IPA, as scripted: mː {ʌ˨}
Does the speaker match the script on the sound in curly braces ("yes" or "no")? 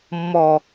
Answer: no